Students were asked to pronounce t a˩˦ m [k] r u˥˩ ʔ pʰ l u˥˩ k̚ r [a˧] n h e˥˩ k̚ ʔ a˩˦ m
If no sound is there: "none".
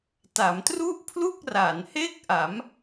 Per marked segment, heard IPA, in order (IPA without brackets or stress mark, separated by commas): t, a˩˦